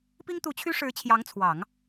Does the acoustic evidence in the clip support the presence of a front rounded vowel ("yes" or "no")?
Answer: yes